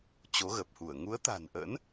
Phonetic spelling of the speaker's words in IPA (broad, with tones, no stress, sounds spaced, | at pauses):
t͡ɕ o˨˦ ɣ ə˨˩ p̚ h u˧˩ ə̯ ŋ u˨˦ ə̯ t̪ a̤˨˩ n ʔ ə̰˧˥ n